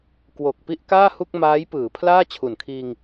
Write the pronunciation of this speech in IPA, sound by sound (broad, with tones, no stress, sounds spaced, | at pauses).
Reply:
k w o˨˩ k̚ p i˥˩ ʔ k aː˥˩ h u˥˩ k̚ m aː˦˥ j p ɯː˩˦ pʰ l aː˥˩ t͡ɕʰ u˨˩ n kʰ iː˧ ŋ